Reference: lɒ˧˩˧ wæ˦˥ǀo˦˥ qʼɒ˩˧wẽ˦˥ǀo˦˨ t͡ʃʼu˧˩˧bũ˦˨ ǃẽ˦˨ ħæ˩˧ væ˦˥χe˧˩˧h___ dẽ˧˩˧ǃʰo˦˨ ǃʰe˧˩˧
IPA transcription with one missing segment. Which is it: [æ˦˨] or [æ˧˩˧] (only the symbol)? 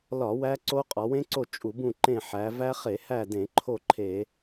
æ˦˨